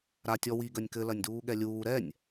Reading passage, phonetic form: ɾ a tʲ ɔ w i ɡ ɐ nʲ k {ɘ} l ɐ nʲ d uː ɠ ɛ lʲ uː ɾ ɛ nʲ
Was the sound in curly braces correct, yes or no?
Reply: yes